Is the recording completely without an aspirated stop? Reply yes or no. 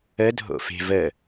yes